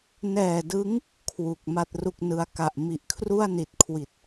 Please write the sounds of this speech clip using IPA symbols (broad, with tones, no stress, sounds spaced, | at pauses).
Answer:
n ɛː˨˩ d ɯ˦˥ ŋ | kʰ w u˨˩ k̚ m a˥˩ t̚ r u˥˩ k̚ n ɯ˦˥ a̯ k a˨˩ ʔ m i˨˩ ʔ kʰ r u˥˩ a̯ n i˨˩ t̚ kʰ w i˨˩ t̚